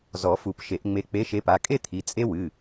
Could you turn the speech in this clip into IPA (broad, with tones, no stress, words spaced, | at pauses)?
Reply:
zɔ˨˩˦fu˨˩˦pʃe˨˩˦ʔŋ͡me˨˦ k͡pe˨˦ʃe˨˦pa˩˧˩kʼe˥˧ t̪ʰi˩˧˩ t͡sʼe˦˥wɨ˩˧˩